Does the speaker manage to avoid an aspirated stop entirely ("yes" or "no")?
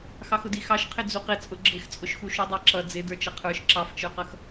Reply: no